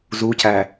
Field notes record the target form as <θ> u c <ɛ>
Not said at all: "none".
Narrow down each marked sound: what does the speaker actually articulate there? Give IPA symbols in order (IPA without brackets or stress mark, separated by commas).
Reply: z, æ